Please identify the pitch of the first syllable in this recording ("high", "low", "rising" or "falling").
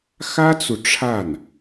high